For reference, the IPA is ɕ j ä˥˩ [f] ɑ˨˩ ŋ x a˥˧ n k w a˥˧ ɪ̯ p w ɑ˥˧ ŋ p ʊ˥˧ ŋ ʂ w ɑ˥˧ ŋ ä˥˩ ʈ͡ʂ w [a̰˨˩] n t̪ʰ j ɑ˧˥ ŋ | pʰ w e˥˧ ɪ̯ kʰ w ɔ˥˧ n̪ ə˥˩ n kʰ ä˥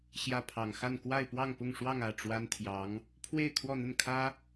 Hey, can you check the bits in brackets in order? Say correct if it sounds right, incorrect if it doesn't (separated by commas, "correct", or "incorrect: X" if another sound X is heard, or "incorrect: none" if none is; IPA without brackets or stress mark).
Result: incorrect: pʰ, incorrect: a˥